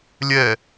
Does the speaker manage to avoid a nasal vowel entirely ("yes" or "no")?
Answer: yes